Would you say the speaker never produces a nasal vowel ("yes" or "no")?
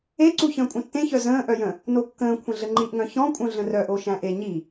no